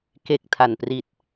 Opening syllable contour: low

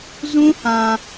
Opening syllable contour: high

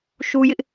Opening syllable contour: high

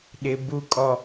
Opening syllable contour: high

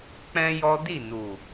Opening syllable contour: high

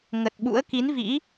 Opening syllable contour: low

